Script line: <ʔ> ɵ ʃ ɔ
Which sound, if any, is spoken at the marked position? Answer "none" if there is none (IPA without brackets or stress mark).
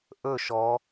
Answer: ʔ